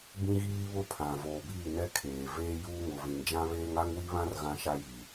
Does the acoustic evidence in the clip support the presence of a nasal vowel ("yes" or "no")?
yes